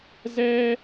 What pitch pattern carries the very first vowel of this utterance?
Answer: high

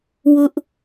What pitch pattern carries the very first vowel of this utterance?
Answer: high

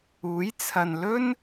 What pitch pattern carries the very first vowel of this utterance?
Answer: rising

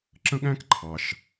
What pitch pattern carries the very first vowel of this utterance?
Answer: high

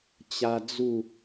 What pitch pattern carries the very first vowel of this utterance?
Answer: high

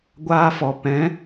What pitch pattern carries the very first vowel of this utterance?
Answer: high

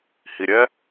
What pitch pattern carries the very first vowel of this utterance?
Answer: low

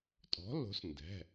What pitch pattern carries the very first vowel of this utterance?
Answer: rising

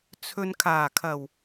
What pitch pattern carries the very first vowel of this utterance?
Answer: low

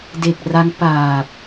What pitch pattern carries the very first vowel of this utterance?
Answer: low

